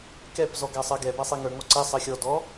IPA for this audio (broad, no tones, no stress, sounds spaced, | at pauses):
k ɛ p z ɔ ɡ a sˤ ɜ ɡ ɛ b a sˤ i ŋ ə˞ ŋ ɔ ǀ ɛ sˤ ɜ xʲ ɔ d ɔ